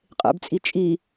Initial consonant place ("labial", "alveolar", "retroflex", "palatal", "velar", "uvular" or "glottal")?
uvular